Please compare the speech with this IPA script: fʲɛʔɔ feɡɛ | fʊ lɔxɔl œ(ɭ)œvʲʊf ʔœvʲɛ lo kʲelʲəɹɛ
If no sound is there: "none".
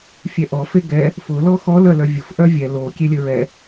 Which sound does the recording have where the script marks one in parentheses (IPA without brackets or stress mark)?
l